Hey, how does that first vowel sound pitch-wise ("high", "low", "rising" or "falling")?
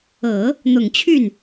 low